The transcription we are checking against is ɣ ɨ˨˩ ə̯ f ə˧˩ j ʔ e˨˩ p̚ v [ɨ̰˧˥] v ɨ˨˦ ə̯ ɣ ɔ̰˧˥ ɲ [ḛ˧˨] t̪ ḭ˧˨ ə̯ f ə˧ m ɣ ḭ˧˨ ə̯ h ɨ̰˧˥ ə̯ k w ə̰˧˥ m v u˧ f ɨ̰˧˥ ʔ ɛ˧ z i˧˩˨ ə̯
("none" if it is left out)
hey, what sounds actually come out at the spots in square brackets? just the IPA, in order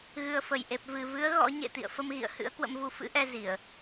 ɨ˨˩, ḛ˧˨

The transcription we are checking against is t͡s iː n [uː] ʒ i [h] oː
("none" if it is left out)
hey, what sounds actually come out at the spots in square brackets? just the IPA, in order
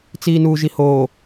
uː, h

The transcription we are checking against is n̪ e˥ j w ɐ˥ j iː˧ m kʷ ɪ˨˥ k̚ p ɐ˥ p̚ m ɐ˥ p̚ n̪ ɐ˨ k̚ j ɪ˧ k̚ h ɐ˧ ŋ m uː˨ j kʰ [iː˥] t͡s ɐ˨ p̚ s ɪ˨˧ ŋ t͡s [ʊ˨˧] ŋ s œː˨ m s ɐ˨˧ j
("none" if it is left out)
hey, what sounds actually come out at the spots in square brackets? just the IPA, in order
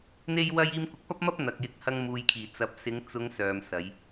iː˨˩, ʊ˨˧

